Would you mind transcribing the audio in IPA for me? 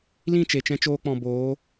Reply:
lĩ˦˨ t͡ʃe˨t͡ʃɛ̃˧t͡ʃoː˧k͡pɔ̃˨ boː˨˦

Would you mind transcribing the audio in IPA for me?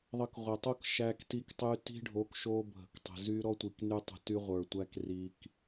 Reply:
ðˤə˧kʁʷə˨tˤo˦k ʃæ˧kti˧ktˤy˧ ti̤˦ɖʱo˨˦k ʃo˧ bʱə̤˨ktˤə̤˨zy˦ ɾɔ˦tʷi˨kny˧tˤə̤˨ ty˧ʁʷə˞˨tʷæ˧k ri˨k

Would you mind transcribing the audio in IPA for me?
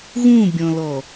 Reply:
ɣũbʲɔ̃lɔ

